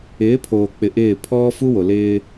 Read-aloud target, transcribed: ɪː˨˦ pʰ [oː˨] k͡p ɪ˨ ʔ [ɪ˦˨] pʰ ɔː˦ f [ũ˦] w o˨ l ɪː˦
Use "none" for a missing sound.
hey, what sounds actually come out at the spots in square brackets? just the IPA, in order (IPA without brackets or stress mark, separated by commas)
oː˨, ɪː˦˨, u˦